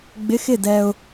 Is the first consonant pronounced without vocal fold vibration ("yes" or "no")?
no